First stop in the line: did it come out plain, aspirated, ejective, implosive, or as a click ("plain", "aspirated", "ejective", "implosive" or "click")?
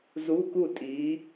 plain